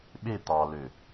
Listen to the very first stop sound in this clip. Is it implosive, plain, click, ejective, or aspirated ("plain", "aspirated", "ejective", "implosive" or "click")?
implosive